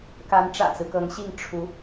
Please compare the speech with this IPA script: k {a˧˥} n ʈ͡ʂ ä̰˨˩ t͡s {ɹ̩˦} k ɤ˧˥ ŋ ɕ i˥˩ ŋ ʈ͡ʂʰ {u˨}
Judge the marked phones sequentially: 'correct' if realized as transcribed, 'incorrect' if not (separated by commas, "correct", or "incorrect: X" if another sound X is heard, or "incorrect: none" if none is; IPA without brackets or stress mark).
correct, correct, incorrect: u˧˥